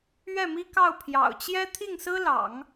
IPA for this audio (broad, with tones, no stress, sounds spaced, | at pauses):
ɥ ɛ˥˩ m i˥ k ɑ˥˩ ʊ̯ pʰ j ɑ̰˨˩ ʊ̯ t͡ɕ j ɛ˥ t̪ʰ i˥˩ ŋ s ɹ̩˥ l ɑ̰˨˩˦ ŋ